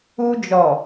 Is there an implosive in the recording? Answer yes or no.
no